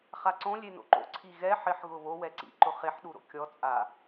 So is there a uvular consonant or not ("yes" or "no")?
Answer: yes